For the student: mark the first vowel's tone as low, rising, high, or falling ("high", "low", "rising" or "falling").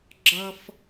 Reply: high